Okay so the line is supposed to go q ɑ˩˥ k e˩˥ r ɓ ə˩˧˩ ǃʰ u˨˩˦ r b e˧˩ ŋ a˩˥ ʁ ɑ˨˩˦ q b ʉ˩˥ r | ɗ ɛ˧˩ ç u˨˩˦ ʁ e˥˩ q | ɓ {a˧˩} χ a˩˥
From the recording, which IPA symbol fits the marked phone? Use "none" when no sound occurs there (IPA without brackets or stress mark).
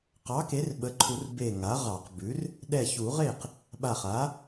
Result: a˧˩